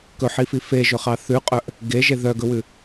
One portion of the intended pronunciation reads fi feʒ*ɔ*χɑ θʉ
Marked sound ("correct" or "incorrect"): incorrect